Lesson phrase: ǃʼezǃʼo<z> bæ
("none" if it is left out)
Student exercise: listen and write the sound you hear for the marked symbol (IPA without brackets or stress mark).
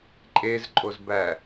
z